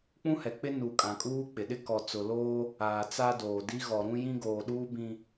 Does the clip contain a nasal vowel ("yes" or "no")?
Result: yes